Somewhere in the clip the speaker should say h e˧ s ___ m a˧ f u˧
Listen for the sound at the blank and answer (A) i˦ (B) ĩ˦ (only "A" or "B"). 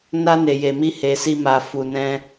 A